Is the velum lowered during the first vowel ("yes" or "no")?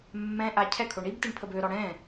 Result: yes